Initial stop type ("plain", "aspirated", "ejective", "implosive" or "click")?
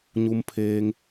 aspirated